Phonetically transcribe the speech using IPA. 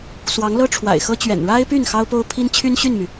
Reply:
s w ɑ˧˥ ŋ l ɤ˥ ʈ͡ʂʰ w a̰˨˩ ɪ̯ x ɤ˥ t͡ɕ ɥ ɛ̰˨˩ n ɻ a˥ ɪ̯ p y˥˩ n x ɑ˥ ʊ̯ p o˥ ʊ̯ pʰ i˥ n t͡ɕʰ y˥ n ɕ y˥˩ n m y˩

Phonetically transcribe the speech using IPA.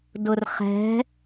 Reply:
d ʊ r χ ɛ̤

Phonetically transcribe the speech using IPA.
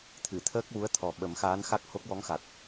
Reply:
t̪ʰ ɨ˨˩˨ t̪ʰ əː˦˥ k̚ w u˧˥ ə̯ t̪ʰ ɔ˨˩ ɓ ə˨˩˦ m x aː˧˥ n x a˦˥ k̚ h o˦˥ k̚ w ɔ˧˥ ŋ x a˨˩ t̚

